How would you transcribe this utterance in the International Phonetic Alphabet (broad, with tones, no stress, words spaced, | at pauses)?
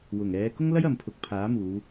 wʊ˨˩ŋ ɛː˨˧ kʊ˥ŋlɐ˥j ɐ˨mpʰʊ˨k̚ pʰaː˨˥muː˨˧